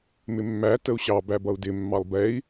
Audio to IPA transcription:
mɪmːæ təu̯ɕɑ bæbʌu̯dɪ mːɑlˠbɛi̯

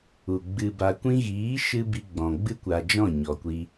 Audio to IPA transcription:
u˨ɡ͡bɨ˧ba˧ kʷĩ˧ɣiː˨˦ʃɨ˧ bi˧ɡ͡bɔ̃˨ ɡ͡bɨ˦kʷa˧d͡ʒɔ̃˦˨ ɲɔ˨kʷi˧

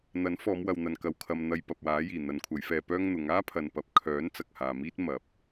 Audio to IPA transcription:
n̪ɐ˨˥n fɔː˨˧mwɐ˨wn̪ɐ˨n kɐ˨wkʰɐ˨m n̪ɐ˧jpɐ˨p̚waː˨˥jiː˨˩ n̪ɐ˨˧nkʷʰɐ˨˧jfɛː˧pœː˥ŋ n̪ʊ˨˧ŋ aː˥pʰɐ˨n pɐ˨p̚kʰœː˨˥n t͡sɐ˨k̚haː˨miː˥t̚ mɐ˨˥p̚

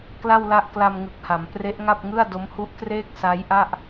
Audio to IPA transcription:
kla˥˩wla˥˩ʔ kla˧mŋɯ˨˩k̚ha˩˦m pre˦˥ʔŋa˥˩p̚ŋɯ˥˩a̯do˦˥m hu˦˥ʔkreː˥˩k̚ sa˦˥jʔa˥˩ʔ

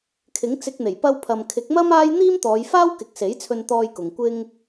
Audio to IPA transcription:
kʰɪ˨˥ŋt͡sɪ˧k̚n̪e˨˩j pɐ˧w pʰɐ˨mkʰɪ˨˥k̚mɐ˥m aː˥j n̪iː˥mt̪ɔː˨˧jfaː˥w kɪ˨˥k̚se˨˥jt͡sʰɵ˧n t̪ɔː˧jkʊ˨ŋ kʷɪ˧ŋ

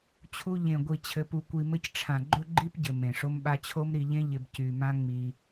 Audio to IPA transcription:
t͡ɕʰu˧ ʎẽ˨ɡʷi˨ t͡ɕʰɘ˧pu˧kʷi˧mɘ˦c ʈ͡ʂʰã˨ɡ͡ǃɵ˦ɡ͡ǃi˦pɟɘ˨ mẽ˨ʂo˦mɓa˦ t͡ɕʰo˦mɾi˧ʎẽ˦ ʎɪ˧b cy˧ mã˦ŋ͡mi˧

